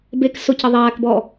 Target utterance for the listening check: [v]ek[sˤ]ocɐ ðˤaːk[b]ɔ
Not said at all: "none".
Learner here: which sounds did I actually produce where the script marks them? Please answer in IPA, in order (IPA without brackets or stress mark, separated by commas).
b, s, b